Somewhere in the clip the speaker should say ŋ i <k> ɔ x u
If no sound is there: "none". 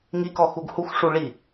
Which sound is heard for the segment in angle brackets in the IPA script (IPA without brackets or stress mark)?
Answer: k